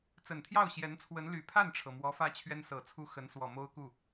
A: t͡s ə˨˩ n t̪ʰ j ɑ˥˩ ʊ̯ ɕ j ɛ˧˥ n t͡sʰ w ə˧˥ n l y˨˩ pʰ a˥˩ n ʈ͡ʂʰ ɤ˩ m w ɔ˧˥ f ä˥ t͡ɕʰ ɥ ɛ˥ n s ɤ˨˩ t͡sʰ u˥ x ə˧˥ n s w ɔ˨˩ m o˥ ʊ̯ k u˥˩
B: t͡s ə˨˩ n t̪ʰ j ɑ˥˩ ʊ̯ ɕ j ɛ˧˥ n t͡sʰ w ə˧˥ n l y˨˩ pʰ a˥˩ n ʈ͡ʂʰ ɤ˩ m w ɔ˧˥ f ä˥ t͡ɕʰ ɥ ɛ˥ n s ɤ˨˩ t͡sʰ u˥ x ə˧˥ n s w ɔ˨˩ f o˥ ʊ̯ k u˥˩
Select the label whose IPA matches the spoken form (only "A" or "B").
A